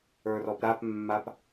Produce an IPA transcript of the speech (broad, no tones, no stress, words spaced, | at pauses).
ə˞rɔpɾapmːap